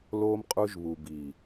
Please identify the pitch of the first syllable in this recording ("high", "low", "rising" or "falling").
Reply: high